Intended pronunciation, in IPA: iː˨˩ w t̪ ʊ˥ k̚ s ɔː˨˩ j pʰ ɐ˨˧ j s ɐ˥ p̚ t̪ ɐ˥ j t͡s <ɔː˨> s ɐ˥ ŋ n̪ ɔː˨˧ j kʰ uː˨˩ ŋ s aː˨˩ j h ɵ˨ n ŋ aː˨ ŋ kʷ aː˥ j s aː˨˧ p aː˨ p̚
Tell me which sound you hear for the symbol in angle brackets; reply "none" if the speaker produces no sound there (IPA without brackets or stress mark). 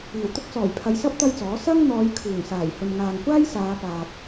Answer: ɔː˨˥